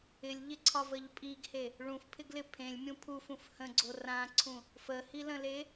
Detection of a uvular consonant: absent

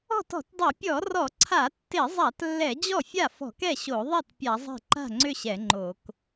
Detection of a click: present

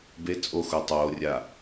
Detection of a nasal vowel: absent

